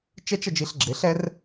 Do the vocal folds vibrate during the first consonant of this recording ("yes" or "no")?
no